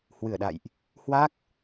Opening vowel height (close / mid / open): close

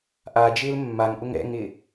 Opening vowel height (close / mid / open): open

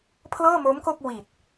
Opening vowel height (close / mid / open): mid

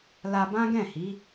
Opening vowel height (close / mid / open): open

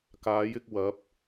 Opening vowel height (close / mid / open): open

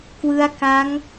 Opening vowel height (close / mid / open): close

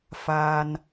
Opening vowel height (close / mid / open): open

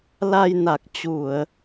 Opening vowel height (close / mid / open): open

